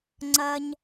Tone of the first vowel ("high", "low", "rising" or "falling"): low